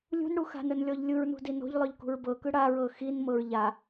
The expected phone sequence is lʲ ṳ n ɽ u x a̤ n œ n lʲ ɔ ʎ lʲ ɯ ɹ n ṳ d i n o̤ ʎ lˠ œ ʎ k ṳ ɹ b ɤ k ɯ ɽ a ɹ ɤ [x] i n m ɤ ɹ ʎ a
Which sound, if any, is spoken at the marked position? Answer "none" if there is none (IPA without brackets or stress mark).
x